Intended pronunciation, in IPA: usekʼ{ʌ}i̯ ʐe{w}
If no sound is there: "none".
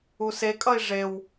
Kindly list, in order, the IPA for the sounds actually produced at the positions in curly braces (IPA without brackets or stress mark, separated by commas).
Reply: ʌ, w